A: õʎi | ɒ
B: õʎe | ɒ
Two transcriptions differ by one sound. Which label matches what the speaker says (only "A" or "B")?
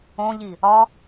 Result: A